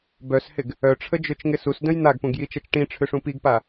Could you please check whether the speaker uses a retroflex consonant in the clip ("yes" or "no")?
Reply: yes